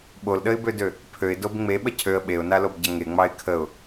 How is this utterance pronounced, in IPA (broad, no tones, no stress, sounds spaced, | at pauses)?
ɓ o l ɗ ə ɪ̯ b ø d ø | pʰ ø ɪ̯ d o b ŋ͡m e ɓ ə cʰ ø ə̯ ɓ e ʊ̯ n a l o b ɟ ɐ ŋ e ŋ͡m ɑ ɪ̯ kʰ ə ʊ̯